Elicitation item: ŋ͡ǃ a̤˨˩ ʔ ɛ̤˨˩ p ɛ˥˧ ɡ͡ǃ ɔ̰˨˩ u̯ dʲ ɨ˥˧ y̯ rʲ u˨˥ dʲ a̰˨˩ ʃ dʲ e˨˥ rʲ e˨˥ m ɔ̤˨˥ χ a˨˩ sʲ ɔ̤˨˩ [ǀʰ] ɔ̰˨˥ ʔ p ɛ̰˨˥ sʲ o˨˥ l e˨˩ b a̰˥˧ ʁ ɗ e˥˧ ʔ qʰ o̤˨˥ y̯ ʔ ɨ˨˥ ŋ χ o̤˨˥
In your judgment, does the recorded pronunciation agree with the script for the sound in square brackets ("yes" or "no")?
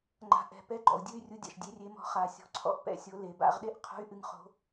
yes